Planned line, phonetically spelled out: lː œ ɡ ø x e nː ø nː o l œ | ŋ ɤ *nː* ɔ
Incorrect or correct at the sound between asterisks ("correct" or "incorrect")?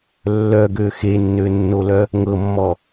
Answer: incorrect